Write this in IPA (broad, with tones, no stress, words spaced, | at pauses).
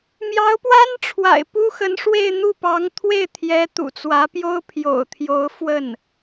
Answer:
mjɑ˧˥ʊ̯pwa˥nʈ͡ʂʰwa̰˨˩ɪ̯ pu˥xə˧˥n ʂwe˥˧ɪ̯ n̪u˥˩pɑ˧˥ŋ t̪ʰwe˥˩ɪ̯t̪ʰjɛ˧˥ t̪ṵ˨˩t͡swä˧˥pjo˥ʊ̯ pʰjo̰˨˩ʊ̯t̪ʰjo˧˥ʊ̯ fwə˥˩n